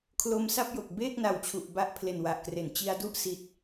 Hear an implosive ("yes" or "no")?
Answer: no